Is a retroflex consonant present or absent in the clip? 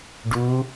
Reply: present